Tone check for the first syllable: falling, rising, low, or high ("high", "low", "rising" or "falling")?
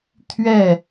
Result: falling